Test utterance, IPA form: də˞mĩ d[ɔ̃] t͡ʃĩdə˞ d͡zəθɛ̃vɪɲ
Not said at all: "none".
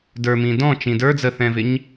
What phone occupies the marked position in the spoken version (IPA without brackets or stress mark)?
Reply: ɔ̃